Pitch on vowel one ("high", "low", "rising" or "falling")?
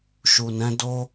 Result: low